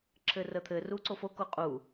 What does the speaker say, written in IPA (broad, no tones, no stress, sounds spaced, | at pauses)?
ǁʰ ɘː r əː t̪ʰ ɘː r uː ǀ o f o k o qʼ u